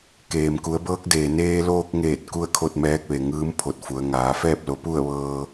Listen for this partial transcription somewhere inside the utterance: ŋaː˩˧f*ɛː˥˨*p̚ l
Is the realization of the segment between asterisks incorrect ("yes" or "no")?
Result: no